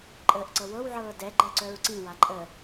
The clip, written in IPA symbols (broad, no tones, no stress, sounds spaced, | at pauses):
ǃʼ əː ʔ ǀ ɤ w ɤ w ʕ ɤː d ɛ ɡ͡ǃ ɛ ǀ œ ɹ ǀ ĩ w a ǃʼ ə